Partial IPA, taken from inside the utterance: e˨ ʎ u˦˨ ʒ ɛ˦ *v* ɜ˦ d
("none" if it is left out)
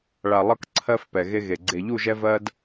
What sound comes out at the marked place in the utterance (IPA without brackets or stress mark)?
v